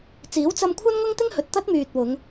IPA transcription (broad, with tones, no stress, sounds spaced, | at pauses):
t͡s iː˨˥ w t͡s ɐ˧ m kʷʰ ɐ˥ n ŋ ʊ˥ ŋ t̪ ɪ˥ ŋ h ɵ˨ t̚ t̪ ɐ˥ t̚ m yː˨ t̚ w ʊ˨˧ ŋ